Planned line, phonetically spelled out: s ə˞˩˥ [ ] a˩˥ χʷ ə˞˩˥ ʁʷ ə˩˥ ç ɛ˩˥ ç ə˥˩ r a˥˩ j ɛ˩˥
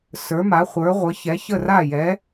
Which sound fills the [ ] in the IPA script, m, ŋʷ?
m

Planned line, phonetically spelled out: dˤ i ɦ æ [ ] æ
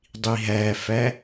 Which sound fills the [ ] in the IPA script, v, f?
f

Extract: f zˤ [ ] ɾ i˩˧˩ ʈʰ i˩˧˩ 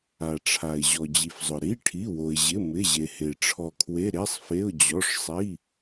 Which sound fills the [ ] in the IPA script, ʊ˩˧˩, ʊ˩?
ʊ˩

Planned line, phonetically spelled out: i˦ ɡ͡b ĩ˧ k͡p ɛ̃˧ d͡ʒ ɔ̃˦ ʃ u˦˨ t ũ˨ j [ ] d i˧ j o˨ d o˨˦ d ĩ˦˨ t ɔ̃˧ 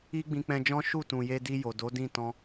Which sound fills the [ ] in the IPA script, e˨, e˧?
e˧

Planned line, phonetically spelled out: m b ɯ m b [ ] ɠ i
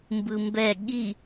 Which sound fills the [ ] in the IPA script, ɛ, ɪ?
ɛ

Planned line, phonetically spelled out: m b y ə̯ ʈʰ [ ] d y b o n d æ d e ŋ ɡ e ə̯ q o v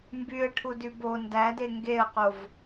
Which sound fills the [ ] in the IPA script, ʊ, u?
u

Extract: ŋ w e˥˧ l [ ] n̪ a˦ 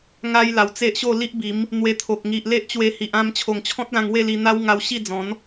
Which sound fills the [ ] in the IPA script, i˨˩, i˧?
i˧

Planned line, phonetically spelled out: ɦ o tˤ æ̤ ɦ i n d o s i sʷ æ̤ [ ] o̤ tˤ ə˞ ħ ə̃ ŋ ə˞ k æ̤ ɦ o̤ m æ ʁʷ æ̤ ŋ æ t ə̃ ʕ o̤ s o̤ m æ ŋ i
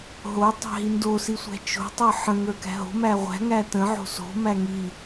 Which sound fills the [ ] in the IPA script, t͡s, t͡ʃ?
t͡ʃ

